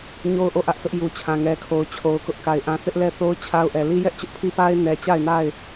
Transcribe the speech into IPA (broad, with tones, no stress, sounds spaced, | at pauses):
ɲ o˦ ʊ̯ ʔ o˦˨ ʔ ä˦ ʔ sʰ ʊ˦ ʔ j u˨ t͡ɕʰ ã˨ ŋ ɛ˨ kʰ o˨ ʊ̯ t͡ɕʰ o˨ ʊ̯ k ʊ˦ ʔ k a˨ ɪ̯ ʔ ã˦ θ ɪ˦ ʔ l ɛ˦˨ θ o˦ ʊ̯ t͡ɕʰ a˦ ʊ̯ ʔ ɛ˨ l i˦ j ɛ˦ ʔ t͡ɕ ʊ˦ ʔ pʰ i˦ p a˦ ɪ̯ n ɛ˨ t͡ɕ a˦˨ ɪ̯ n a˦˨ ɪ̯